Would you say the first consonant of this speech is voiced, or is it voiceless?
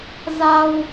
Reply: voiced